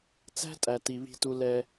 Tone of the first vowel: high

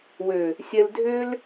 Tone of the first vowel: low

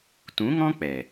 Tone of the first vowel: rising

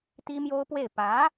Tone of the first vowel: high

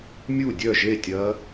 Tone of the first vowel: falling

